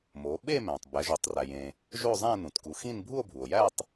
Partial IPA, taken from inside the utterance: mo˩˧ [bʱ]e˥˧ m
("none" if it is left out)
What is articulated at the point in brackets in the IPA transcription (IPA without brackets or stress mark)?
ɓ